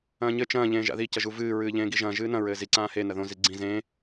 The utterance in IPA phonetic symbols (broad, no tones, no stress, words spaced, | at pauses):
ɐ̃ːɲɘ t͡ʃɐ̃ː ʎẽːʒa̰ði cɐʒuvɨː ɹɨːʎẽːɡiʒɐ̃ː ʒɨːnɐ̃ ɹɘːzi ǀãːhe nɐðõ ziɡ͡ǀĩ zẽː